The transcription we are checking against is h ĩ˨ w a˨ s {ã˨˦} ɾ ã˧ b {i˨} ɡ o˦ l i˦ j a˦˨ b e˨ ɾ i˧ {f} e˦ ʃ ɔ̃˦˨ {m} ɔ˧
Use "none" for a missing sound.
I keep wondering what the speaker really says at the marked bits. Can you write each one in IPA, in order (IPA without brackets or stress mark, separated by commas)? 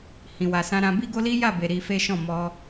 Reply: ã˧, i˦, f, m